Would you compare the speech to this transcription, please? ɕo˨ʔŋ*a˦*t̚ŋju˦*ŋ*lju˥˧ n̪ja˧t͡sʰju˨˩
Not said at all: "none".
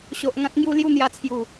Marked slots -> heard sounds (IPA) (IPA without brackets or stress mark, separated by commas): ã˦, none